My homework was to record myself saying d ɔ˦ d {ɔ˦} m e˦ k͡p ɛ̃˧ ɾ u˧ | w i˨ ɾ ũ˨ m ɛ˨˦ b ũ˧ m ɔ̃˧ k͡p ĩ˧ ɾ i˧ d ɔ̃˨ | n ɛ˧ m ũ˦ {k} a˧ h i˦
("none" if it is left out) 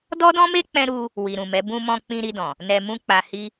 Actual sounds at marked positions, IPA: ɔ̃˦, k͡p

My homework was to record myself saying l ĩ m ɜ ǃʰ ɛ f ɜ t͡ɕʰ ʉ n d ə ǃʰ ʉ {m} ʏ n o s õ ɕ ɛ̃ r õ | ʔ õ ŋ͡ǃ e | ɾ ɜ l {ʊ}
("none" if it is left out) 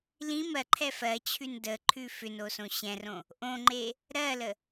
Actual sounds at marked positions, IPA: f, ə

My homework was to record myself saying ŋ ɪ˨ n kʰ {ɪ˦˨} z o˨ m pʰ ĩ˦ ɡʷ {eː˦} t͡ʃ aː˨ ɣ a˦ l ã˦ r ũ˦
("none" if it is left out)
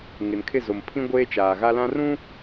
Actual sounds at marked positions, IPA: ɪ˦˨, eː˦

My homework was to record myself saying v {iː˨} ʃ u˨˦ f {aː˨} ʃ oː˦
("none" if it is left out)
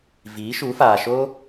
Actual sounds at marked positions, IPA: iː˨˦, aː˨

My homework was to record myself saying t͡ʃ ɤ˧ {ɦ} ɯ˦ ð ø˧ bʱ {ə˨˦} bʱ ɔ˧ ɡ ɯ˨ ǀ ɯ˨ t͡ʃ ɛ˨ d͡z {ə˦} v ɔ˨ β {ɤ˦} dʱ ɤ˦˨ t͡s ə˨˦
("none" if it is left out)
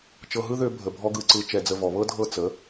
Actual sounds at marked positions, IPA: ɦ, ə˨, ə˨, ɤ˦

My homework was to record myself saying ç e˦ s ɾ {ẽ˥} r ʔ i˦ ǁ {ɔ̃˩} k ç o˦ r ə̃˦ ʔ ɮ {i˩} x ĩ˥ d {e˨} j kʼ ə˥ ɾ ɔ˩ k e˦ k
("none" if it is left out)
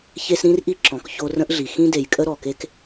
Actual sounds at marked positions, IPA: ĩ˥, ɔ̃˩, i˩, e˨

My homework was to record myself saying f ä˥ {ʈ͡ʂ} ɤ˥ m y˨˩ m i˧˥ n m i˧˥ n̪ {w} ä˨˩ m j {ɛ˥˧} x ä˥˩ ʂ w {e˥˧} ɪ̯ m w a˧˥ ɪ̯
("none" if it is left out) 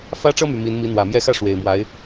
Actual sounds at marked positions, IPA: ʈ͡ʂ, w, ɛ˥˧, e˨˩

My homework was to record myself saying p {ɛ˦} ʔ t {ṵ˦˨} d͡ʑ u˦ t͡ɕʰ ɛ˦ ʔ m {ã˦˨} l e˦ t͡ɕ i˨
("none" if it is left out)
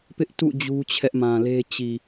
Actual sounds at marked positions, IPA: ɪ˦, ṵ˦˨, ã˨

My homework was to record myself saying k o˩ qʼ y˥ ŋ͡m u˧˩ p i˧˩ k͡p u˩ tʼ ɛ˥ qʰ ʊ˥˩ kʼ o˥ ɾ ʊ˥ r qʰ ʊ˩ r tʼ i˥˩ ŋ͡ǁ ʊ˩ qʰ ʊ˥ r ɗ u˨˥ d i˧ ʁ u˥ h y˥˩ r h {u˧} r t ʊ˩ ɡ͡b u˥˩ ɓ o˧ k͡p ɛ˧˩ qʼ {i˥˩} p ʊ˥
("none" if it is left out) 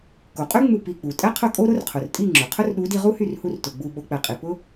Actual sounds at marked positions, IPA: u˧, i˩

